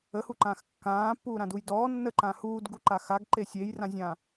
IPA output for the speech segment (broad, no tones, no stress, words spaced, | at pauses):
əhuǃãːx kːãːpːuːɾãduj dɔː nːəǃãː huːdɡuǃa xaɡǃe sʲejrãzʲãː